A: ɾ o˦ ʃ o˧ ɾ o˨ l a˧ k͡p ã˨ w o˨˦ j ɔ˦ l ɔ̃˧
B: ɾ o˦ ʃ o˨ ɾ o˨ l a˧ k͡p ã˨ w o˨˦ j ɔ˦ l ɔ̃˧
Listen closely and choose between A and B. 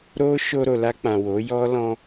A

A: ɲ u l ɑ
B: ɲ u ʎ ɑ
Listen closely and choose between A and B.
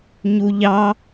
B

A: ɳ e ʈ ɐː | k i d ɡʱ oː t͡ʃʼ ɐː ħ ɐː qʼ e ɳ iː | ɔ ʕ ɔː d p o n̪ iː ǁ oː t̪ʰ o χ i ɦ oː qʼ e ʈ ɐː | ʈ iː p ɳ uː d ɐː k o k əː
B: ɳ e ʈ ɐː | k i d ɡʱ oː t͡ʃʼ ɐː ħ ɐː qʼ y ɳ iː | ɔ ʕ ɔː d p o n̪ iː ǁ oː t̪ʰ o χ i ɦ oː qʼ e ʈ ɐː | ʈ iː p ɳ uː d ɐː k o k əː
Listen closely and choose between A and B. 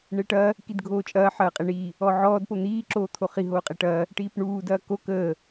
A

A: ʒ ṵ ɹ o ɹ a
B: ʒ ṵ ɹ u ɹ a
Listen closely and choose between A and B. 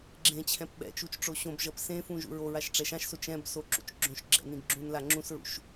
A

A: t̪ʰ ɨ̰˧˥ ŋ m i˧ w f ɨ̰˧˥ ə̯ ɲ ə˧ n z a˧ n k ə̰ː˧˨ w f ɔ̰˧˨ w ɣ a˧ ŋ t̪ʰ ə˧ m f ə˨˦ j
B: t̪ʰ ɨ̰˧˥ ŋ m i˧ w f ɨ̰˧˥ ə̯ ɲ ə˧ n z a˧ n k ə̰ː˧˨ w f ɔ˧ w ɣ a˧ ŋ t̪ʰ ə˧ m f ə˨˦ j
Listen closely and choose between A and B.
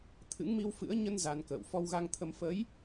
B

